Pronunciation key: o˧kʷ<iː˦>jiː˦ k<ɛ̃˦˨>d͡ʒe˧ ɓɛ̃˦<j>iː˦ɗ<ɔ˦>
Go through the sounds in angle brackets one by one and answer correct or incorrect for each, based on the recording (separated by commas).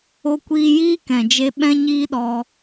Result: incorrect, incorrect, incorrect, incorrect